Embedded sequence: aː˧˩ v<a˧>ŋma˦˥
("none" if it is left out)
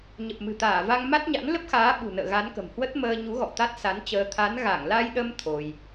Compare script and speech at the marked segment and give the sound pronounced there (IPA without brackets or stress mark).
a˧